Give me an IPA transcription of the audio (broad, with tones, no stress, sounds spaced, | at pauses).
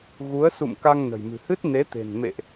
ɣ u˨˦ ə̯ s ṵ˧˨ m k a˧ ŋ n ə̤˨˩ j m ɨ̤˨˩ h ɨ˦˥ t̚ n e˨˦ t̪ e̤˨˩ n m ḛ˧˨ ʔ